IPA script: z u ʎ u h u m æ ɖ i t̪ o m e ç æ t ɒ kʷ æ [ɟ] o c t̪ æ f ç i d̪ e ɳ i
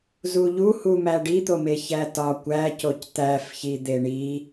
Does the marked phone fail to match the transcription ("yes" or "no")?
yes